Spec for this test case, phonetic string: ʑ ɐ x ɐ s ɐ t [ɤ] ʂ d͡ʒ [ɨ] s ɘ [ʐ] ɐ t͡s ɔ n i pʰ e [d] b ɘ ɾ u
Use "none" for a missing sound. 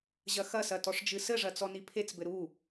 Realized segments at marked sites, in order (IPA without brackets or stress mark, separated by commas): ɔ, ɨ, ʐ, t͡s